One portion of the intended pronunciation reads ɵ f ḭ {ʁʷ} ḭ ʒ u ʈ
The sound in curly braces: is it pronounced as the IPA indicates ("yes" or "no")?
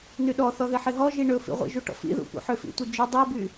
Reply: yes